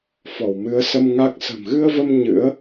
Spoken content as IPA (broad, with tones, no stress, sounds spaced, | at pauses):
f ɔ˧˩ w m ɨ˨˦ ə̯ s ə˧ m ŋ a˦˥ k̚ s ə̤˨˩ m ɣ ɨ˧ ə̯ v ə˧ m ɲ ɨ̰˧˥ ə̯